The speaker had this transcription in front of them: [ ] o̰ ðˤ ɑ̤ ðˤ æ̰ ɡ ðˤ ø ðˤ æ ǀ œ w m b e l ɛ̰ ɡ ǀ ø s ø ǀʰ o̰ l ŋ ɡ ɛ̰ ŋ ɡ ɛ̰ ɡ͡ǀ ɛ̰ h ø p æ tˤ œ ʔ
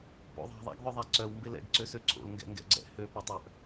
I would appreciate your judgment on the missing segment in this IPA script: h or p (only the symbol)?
p